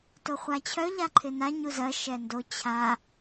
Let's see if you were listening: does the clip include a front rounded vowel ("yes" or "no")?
yes